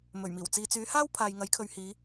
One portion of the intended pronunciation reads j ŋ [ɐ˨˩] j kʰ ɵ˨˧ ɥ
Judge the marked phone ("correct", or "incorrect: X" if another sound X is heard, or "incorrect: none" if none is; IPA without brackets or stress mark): incorrect: ɐ˨˥